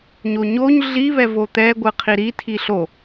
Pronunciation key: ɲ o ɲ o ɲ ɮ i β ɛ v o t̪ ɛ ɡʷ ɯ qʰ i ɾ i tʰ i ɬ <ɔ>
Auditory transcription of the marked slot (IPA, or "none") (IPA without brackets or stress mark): o